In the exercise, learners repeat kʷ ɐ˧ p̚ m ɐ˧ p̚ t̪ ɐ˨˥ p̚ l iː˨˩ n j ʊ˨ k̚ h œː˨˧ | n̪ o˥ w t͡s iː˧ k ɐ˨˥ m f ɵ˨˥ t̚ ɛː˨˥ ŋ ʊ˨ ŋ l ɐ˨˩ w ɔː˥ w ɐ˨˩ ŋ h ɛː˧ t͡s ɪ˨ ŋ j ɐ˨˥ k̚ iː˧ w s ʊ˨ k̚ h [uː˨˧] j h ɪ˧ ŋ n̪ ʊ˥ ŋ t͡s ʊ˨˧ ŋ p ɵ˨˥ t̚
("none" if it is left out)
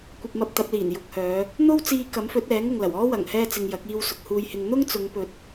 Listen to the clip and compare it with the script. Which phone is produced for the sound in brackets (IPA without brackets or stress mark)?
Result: uː˧